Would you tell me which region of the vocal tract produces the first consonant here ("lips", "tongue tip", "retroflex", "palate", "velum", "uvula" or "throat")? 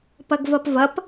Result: lips